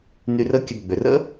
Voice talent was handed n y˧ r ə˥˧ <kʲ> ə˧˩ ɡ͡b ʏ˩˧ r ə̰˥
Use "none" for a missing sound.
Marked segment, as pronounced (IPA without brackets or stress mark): kʲ